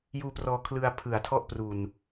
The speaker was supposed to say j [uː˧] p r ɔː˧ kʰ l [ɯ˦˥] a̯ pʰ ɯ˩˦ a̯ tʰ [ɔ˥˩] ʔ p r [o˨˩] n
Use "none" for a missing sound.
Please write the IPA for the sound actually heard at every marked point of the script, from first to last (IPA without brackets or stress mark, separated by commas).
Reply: uː˧, ɯ˧, ɔ˥˩, u˨˩